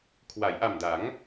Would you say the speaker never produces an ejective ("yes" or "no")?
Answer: yes